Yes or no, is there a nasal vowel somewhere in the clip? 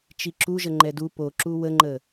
no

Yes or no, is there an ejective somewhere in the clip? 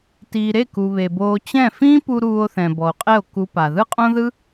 yes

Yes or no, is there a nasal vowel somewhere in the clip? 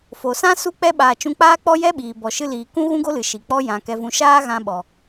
yes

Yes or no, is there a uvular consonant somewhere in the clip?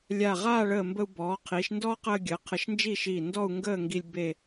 yes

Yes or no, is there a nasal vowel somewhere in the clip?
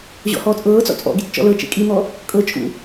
no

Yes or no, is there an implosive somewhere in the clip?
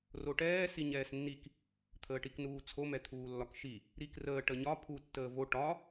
no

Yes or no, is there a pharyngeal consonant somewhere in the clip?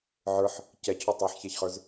yes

